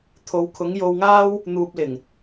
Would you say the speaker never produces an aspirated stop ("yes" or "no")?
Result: no